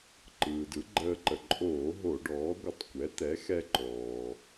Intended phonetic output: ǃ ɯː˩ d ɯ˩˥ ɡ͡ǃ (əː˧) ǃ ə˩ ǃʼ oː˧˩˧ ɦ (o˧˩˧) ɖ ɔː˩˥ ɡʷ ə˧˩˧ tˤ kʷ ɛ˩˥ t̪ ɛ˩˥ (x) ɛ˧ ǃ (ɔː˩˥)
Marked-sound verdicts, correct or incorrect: correct, correct, correct, incorrect

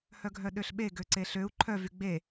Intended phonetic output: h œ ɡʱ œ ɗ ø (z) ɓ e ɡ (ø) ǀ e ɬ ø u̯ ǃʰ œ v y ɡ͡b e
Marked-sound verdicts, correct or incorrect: incorrect, correct

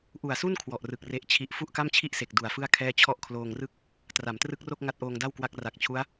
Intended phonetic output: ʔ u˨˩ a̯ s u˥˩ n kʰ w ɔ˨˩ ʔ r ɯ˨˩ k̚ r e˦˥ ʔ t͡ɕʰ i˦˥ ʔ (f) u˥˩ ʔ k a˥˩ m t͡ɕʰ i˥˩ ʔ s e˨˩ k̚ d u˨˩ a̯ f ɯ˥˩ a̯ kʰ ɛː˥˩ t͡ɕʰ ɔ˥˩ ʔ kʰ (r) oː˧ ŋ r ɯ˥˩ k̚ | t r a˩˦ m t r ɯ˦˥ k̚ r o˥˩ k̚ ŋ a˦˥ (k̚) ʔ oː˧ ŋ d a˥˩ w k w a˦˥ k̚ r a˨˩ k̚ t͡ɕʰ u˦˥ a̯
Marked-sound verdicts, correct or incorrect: correct, incorrect, incorrect

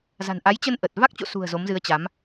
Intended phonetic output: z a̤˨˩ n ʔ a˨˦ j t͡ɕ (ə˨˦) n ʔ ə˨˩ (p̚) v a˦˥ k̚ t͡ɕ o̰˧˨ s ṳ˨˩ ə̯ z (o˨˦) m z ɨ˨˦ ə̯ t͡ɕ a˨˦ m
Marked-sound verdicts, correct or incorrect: incorrect, incorrect, correct

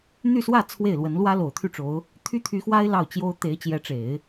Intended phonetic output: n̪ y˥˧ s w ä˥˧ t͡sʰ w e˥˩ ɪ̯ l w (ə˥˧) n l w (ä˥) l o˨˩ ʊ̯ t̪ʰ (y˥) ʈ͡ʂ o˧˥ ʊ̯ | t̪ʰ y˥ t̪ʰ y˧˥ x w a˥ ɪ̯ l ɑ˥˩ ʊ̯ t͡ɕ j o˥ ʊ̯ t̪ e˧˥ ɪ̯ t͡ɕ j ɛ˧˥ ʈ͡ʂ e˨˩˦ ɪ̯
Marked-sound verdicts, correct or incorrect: incorrect, correct, incorrect

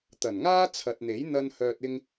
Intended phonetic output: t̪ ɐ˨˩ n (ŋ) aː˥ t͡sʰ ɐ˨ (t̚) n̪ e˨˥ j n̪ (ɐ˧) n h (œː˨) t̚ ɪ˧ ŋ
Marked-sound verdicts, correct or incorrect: correct, correct, correct, correct

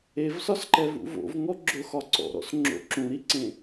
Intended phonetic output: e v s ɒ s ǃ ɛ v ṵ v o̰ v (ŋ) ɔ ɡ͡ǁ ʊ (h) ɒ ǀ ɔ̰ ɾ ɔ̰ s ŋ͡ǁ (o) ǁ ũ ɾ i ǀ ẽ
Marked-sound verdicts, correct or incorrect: correct, incorrect, incorrect

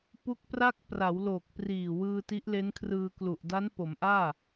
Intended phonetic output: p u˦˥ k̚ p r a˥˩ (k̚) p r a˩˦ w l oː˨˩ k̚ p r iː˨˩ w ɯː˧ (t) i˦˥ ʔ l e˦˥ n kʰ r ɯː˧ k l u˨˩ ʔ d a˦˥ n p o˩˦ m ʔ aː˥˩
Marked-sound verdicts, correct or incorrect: correct, correct

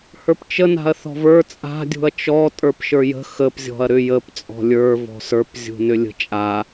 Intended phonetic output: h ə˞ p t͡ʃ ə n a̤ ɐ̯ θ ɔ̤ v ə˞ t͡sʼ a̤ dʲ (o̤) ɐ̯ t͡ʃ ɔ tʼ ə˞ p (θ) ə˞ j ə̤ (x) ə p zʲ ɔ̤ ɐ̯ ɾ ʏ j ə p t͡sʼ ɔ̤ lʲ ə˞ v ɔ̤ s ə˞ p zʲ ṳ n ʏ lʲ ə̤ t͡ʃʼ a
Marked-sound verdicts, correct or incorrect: incorrect, incorrect, correct

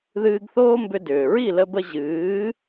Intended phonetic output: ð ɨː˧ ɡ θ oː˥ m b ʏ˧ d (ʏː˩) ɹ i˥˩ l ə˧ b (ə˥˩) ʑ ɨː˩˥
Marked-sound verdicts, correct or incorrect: correct, incorrect

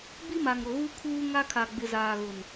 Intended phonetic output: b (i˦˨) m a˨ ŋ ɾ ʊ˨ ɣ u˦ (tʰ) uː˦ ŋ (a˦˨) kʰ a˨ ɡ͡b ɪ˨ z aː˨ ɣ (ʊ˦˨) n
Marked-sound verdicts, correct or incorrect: incorrect, incorrect, incorrect, incorrect

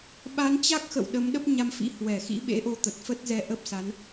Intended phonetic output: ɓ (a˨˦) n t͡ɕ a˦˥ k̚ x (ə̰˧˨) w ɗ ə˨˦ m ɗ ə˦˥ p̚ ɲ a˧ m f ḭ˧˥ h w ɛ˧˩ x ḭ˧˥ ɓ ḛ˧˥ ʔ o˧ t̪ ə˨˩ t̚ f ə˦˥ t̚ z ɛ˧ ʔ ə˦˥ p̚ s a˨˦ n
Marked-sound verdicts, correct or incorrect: correct, correct

